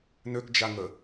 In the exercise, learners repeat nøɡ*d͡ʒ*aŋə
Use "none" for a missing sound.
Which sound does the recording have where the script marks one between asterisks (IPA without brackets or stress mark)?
d͡ʒ